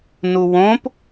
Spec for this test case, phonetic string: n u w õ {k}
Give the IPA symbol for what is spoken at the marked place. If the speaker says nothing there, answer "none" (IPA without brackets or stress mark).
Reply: p